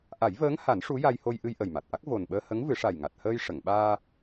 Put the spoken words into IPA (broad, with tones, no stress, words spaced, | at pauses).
ʔa˨˩˦jvəː˧˥ŋha˨˩˦n ʂu˧˥ja˧jho˧j ʔɨ˧jʔə˨˩jma˨˩t̚ʔa˦˥k̚ vo˨˩nɓəː˧hə˧˥ŋ vɨ˨˩˦ʂa˨˩jŋa˨˩t̚həː˧j ʂə˨˩˨ŋɓaː˧